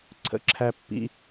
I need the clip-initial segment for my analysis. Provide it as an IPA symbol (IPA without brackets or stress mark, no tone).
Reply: ǀʰ